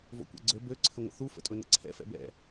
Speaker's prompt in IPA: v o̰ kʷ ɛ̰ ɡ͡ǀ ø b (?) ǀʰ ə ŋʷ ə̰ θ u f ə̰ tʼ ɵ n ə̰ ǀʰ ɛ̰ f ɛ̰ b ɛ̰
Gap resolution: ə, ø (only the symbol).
ø